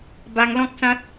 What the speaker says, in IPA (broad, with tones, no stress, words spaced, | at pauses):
ba˧ŋlɔ̃˦k̚sã˦t̚